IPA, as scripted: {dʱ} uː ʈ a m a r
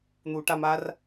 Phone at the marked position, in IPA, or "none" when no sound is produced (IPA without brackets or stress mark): n̪